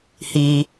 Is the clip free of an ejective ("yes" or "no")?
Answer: yes